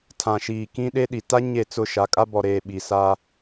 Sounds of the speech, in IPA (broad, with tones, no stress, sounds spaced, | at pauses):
tʰ ã˨ ʃ iː˨ k ĩ˦ ɗ e˦ ɗ i˨ t a˦ ɲ e˦˨ t͡s ʊ˦˨ ʃ a˨˦ kʼ a˦ b ɔ˨ ɾ eː˨ ɓ i˨ s a˦